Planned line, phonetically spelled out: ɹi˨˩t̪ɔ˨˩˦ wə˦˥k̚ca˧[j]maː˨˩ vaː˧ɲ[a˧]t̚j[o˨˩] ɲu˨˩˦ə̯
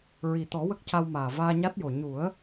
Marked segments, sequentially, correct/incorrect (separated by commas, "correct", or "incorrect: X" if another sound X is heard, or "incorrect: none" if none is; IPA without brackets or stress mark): incorrect: w, incorrect: a˦˥, correct